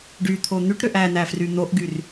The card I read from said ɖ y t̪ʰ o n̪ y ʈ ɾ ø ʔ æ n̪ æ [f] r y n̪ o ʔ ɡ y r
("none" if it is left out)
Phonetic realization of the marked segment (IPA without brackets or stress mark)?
f